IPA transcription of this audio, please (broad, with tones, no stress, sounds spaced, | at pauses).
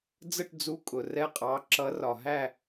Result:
d͡z ə˥˨ ʈ d͡z u˧˥˧ kʼ ʊ˨ r ɛ˥˨ qʼ ɑ˧˥˧ ǁ ʌ˧˥ r ɒ˨ ɦ æ˥˨